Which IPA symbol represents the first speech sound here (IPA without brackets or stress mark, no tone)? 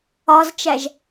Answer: ɒ